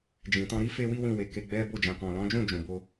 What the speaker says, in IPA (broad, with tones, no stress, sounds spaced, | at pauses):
d͡ʒ ĩ˨ t ɔ̃˧ ɾ i˦ f e˦ w i˦ w ĩ˦˨ w e˧ k e˧ ɡ͡b ɛ˦ b o˦˨ d͡ʒ ã˨ k ɔ̃˨ l ɔ̃˨˦ d͡ʒ ũ˦˨ d͡ʒ ũ˧ b o˦